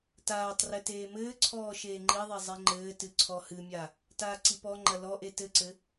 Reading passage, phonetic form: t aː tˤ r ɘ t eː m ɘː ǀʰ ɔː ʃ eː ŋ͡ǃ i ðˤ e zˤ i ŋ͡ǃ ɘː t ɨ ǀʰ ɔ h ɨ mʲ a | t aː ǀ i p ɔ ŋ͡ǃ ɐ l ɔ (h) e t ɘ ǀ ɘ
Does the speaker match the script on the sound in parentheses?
no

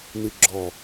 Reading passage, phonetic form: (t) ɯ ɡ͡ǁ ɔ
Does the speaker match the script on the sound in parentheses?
no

